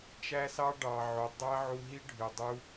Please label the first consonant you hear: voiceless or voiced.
voiceless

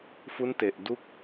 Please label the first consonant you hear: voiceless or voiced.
voiceless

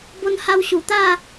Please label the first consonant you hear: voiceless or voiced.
voiced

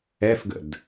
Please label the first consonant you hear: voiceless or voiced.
voiceless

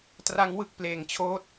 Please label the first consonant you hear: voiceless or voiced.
voiceless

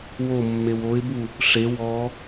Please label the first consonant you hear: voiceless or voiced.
voiced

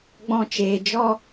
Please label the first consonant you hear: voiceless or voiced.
voiced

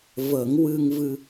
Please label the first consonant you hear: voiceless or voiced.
voiced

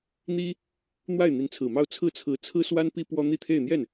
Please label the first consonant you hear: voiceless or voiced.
voiced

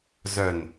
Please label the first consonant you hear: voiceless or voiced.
voiced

